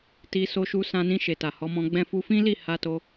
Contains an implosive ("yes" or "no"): no